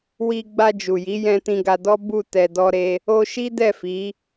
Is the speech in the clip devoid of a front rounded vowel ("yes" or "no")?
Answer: yes